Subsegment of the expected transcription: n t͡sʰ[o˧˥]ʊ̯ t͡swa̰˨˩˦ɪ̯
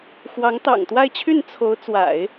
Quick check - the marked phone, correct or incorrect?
correct